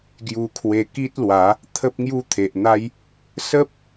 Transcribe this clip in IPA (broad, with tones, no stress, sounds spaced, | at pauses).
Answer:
ɡ j u˧ kʰ w e˧ k i˦ t̚ l w a˨˦ | t̪ʰ ə˦ p̚ ŋ j u˦ t̪ʰ e˨ ʔ n̪ a˦ j | s ə˦ p̚